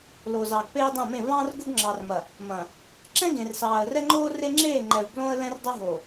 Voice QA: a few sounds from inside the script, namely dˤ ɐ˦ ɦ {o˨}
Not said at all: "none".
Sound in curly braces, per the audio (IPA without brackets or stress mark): o˨